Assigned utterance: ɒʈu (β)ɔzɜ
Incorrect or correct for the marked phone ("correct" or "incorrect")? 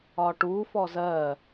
incorrect